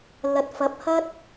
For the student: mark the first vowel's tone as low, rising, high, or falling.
rising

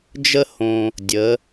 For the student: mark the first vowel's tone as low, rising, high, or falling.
high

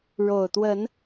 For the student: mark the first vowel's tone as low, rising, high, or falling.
low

